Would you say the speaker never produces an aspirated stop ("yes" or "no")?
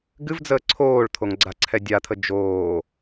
no